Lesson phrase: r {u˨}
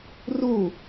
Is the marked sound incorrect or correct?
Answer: incorrect